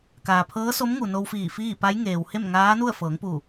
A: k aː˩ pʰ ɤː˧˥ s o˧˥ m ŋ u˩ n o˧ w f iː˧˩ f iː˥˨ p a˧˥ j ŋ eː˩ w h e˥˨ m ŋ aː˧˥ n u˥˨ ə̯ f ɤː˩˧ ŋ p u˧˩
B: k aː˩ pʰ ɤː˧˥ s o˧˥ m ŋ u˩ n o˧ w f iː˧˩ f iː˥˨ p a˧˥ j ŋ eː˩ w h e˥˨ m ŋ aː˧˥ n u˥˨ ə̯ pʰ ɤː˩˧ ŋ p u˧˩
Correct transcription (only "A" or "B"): A